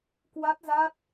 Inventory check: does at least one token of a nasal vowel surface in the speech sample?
no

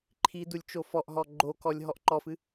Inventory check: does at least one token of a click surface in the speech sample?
yes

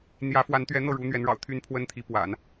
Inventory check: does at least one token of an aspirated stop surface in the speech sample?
yes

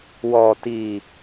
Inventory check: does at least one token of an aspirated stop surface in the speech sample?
no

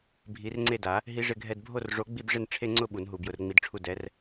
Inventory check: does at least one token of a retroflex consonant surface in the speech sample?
yes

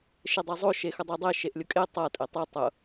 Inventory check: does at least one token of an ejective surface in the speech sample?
yes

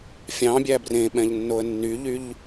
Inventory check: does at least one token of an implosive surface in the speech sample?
yes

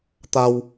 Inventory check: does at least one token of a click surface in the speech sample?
no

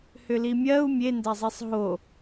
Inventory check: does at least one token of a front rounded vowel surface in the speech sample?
yes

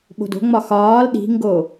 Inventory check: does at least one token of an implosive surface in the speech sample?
yes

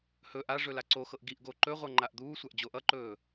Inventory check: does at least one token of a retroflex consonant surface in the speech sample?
yes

